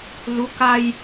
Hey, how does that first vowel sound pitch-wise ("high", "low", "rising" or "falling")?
rising